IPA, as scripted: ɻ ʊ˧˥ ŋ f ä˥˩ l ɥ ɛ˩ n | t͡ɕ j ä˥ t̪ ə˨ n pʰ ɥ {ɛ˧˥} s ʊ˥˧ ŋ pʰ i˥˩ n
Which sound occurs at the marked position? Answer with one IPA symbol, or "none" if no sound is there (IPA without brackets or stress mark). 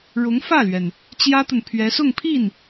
ɛ˧˥